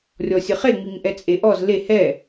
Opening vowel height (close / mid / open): mid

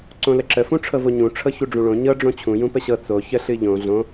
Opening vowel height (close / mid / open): mid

